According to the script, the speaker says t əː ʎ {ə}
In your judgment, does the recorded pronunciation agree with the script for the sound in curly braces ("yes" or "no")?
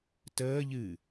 no